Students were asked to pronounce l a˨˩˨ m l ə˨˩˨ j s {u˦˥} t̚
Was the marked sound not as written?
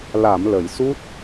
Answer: no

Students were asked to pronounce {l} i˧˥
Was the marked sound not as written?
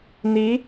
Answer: yes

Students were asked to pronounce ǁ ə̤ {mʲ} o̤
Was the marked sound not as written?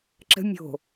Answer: no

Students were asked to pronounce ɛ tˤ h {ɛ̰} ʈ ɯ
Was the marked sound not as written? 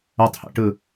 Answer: no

